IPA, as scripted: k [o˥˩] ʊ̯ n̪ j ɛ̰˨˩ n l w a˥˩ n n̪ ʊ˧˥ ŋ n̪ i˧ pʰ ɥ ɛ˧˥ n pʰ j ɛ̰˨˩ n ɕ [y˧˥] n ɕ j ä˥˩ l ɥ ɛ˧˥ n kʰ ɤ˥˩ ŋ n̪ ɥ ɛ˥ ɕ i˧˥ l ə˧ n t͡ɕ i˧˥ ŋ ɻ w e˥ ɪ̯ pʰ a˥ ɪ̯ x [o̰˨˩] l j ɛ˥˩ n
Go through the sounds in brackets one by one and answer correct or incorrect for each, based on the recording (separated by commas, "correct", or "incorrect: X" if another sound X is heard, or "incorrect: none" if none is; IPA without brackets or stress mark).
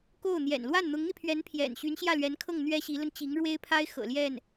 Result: correct, correct, incorrect: ɤ̰˨˩